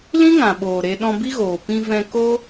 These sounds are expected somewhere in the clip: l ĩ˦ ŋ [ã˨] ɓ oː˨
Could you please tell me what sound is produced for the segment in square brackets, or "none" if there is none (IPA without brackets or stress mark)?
ã˨